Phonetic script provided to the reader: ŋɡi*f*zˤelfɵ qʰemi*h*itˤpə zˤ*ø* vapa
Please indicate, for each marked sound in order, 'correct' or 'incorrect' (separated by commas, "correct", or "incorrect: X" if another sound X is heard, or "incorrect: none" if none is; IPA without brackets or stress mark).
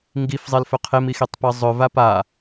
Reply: correct, incorrect: x, incorrect: ɵ